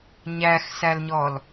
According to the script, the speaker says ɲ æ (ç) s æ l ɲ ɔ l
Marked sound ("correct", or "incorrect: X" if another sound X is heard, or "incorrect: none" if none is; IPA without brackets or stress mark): incorrect: x